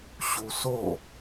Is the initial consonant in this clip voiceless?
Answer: yes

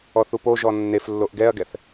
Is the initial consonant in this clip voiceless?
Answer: yes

